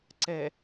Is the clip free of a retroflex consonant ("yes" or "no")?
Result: yes